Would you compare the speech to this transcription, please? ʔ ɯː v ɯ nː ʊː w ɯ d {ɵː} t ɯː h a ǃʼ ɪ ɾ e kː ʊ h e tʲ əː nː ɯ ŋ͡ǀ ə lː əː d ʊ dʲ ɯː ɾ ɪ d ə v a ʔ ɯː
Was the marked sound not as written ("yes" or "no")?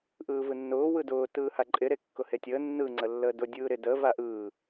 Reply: yes